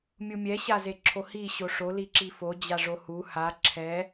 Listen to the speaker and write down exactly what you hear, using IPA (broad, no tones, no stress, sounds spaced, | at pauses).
mʲ u mʲ ɛ ɕ a z e ǁʰ o h i ɕ o ʂ o l i ǁ i f o d͡ʑ a ʐ o h u h a ǁʰ ɛ